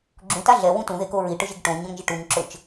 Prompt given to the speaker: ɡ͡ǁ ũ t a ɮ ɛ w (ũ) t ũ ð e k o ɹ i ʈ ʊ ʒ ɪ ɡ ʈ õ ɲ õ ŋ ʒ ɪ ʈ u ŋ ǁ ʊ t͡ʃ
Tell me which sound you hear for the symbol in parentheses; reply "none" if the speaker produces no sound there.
ũ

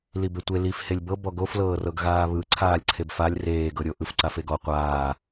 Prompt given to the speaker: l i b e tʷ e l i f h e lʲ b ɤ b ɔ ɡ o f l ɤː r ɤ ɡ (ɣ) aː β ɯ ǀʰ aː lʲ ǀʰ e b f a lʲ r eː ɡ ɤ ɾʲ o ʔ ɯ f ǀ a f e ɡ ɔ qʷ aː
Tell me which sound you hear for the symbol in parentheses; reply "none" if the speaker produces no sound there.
ɣ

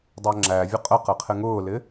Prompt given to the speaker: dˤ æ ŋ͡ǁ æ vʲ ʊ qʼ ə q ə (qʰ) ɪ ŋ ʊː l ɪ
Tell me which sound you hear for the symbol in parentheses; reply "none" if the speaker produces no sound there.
qʰ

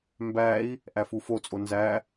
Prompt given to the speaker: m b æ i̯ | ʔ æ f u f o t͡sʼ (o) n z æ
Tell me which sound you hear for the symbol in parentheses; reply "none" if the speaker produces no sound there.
o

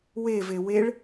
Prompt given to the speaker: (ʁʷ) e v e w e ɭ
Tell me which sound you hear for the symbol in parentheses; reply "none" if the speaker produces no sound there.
w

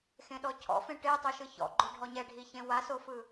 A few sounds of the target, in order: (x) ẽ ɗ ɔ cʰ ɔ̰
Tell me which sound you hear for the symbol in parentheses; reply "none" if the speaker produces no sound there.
x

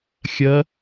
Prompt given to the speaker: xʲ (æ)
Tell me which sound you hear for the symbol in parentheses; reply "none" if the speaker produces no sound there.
ɜ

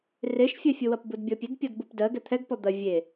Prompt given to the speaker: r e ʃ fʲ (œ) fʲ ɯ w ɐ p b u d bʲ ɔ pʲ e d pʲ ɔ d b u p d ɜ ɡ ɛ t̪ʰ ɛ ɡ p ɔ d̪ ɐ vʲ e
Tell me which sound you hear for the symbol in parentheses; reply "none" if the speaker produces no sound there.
œ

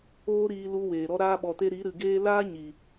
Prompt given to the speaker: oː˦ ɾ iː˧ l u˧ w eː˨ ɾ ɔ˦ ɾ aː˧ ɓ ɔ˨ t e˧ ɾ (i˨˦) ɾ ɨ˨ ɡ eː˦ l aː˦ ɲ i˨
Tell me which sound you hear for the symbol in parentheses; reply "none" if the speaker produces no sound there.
i˨˦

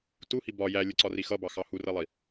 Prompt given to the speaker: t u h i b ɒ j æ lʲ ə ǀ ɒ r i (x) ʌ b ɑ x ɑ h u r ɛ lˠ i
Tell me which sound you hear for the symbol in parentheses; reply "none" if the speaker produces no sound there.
x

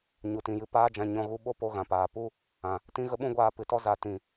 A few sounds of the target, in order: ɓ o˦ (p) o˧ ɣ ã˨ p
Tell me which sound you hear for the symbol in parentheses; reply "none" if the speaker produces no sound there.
p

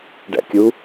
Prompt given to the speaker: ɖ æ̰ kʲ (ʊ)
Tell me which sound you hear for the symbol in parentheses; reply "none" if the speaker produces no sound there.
u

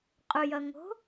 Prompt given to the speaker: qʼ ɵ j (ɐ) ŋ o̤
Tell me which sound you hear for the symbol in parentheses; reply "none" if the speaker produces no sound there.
ɐ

